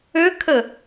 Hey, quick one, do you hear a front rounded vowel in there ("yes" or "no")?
yes